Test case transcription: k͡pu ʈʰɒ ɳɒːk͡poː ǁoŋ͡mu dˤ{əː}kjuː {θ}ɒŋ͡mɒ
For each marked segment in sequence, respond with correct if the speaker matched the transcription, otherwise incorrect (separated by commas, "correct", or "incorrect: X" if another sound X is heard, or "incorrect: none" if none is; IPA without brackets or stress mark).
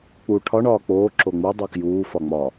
correct, incorrect: f